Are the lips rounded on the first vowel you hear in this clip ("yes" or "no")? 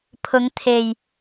yes